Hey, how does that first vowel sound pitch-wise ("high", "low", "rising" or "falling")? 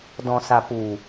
low